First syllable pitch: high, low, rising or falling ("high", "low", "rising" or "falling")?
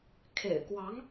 low